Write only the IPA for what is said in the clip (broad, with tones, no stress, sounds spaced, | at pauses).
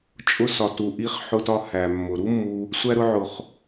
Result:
t͡ʃʼ ʊ˧ s ɒ˨ t u˨ ʔ i˧ χ ħ ʊ˧ t ɒ˧ h æ˨ mː ʊ˨ ɾ u˦ mː u˧ | sʷ æ˧ ɾ ʊ˧ ʕ ʊ˨ χ